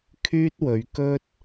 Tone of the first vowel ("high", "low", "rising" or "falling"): high